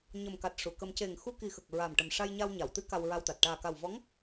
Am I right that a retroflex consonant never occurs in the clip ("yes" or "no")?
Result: no